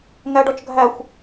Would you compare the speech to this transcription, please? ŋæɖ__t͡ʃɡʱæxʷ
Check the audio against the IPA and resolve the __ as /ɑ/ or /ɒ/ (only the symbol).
ɒ